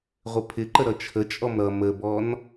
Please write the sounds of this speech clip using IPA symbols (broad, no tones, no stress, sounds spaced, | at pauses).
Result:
ʁʷ ɪ pʰ ɪ ǃ ə ɾ ʌ t͡ʃʰ ə t͡ʃʼ ɔ m ɾ ʌ m ə b ɔ n